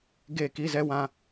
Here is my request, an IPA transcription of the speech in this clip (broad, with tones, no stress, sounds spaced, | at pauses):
ɡ e˦˨ k i˦ z ɛ˦ w ã˦